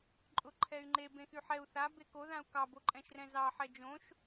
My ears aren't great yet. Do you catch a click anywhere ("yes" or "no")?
yes